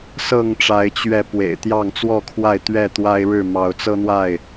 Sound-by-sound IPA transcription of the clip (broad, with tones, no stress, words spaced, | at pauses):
sɤ˥˨ŋʈ͡ʂa˨˦ɪ̯ t͡ɕɥɛ˨˦ pwḛ˨˩ɪ̯t̪jɑ˥˨ŋt͡swɔ˥˨kʰwa˥˨ɪ̯ t̪ɥɛ˥˨t̪wa˦ɪ̯ɻɻ̩˥˨ mɑ˨˦ʊ̯t͡sɤ˦n̪wa˥˨ɪ̯